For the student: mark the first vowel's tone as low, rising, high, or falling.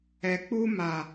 low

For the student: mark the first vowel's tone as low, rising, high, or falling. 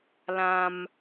high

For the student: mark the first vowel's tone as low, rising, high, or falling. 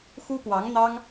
high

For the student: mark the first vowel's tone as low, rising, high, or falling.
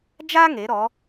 high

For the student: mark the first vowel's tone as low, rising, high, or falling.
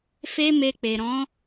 high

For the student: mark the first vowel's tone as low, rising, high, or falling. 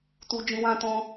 high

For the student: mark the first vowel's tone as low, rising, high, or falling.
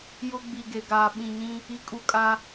high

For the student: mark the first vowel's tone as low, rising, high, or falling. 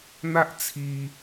high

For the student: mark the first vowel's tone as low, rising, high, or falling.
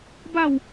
falling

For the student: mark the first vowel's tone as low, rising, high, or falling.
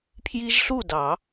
high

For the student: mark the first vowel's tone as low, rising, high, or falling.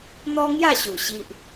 high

